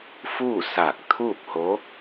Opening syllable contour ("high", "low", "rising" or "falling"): falling